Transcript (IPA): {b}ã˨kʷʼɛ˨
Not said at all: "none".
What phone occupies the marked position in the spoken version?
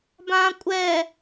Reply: b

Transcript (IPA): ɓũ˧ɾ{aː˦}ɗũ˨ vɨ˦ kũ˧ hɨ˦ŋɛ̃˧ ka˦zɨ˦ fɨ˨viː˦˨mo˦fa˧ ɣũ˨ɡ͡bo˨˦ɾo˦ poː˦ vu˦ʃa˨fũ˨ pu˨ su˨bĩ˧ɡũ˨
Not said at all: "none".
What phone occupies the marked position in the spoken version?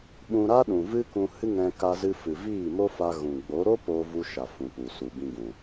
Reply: a˦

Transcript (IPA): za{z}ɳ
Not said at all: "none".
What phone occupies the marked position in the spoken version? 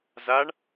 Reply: none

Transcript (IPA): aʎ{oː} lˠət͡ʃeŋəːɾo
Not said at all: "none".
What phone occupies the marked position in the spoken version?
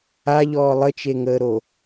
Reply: ɔː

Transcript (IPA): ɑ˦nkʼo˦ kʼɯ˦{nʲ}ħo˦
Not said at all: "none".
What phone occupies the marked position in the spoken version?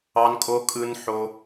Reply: n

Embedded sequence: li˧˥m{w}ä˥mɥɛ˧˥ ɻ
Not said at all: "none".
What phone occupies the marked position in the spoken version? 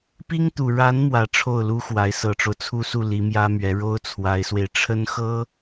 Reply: j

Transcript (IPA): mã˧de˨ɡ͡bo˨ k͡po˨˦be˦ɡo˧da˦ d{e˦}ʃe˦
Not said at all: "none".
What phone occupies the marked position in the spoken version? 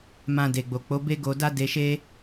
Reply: e˧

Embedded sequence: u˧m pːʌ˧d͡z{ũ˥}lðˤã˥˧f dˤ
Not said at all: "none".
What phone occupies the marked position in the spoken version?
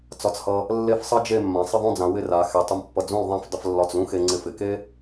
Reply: ũ˥˧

